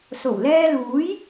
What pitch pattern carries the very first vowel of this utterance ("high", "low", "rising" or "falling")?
low